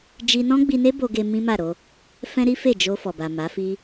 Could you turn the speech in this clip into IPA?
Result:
d͡ʒ i˧ n ɔ̃˦ ɡ͡b i˧ n e˦ b o˧ ɡ e˧ m ĩ˦ m a˦˨ ɾ o˧ | f ɛ̃˦ ɾ i˦ f e˦˨ d͡ʒ o˧ f ɔ˨ b a˨ m a˨˦ f i˦

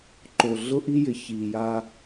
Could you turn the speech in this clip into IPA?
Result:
ǃ o˨ ɮ ʊ˦ ʔ i˦ j ɪ˨ ç iː˨ j a˦

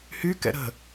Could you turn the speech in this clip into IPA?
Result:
h y k ɛ̰ ɾ ə̤

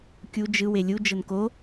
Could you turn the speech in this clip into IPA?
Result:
kʲ u d͡ʒ ɯ w e lʲ u d͡ʒ ɤ n k o

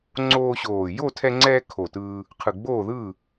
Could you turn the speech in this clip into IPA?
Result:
ŋ͡ǀ oː˧ ɕ oː˨˩ j o˥˩ tʰ ɛ˧ ŋ͡ǀ ɛː˧ kʰ o˨˩ t ɯː˧ | qʰ ɯ˨˩ ɡ͡b oː˥˩ ð ɯː˥˩

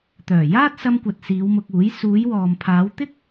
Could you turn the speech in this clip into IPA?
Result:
t̪ œː˨˩ j aː˥ t̚ s ɐ˧ m kʷ ɐ˨ t̚ s iː˨˧ w m ʊ˧ k̚ uː˨˥ j s uː˨˧ j w ɔː˨ m pʰ aː˨˧ w t̪ ɪ˥ k̚

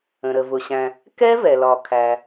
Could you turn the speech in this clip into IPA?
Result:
ə̃˩ ɾ ə˩ v ʊ˩ ɕ æ̃˩ | k ɛ˦˥ v ɛ˩ l ɒ˩ kʰ æ˩

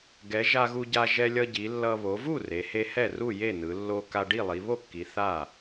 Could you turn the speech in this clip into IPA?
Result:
ɡ ɛ˩˧ ʒ a˧ ɣ u˧ ɟ a˧ ʒ ɛ˧ lʲ ʌ˧ ɟ i˩˧ lː ʌ˧ β o˩˧ v u˥˩ r e˩˧ h e˧ h ɛ˥˩ r u˥˩ j e˥˩ n ɯ˩˧ lː o˧ k a˧ ɖ i˥˩ lˠ i˩˧ β o˥˩ kː i˩˧ θ a˥˩

